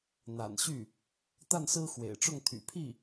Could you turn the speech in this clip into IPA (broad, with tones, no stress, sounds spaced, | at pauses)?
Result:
n̪ a̰˨˩ n ɕ y˥˩ | t̪ a˥˩ n s ɹ̩˥ x w ḛ˨˩ ɪ̯ ʈ͡ʂ ʊ˥˩ ŋ t̪ʰ y̰˨˩ pʰ i˥˩